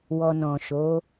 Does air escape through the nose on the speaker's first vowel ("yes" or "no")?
no